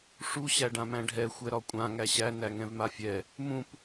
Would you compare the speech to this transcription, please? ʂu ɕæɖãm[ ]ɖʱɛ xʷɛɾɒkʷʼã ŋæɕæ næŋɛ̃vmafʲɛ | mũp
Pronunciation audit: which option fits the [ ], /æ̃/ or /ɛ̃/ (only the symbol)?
æ̃